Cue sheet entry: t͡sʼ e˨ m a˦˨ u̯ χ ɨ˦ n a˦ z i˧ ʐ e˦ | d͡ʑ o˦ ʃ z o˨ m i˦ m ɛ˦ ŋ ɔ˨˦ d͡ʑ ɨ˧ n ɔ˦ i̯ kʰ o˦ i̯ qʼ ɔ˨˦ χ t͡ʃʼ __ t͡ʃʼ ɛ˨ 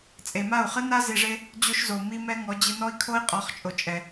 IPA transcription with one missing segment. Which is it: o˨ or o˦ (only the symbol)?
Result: o˨